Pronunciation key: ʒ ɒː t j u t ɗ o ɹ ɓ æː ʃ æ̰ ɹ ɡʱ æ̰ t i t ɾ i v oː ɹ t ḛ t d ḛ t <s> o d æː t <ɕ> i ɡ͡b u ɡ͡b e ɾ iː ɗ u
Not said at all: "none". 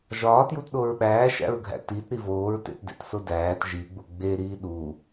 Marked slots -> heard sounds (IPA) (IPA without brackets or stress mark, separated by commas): s, ʒ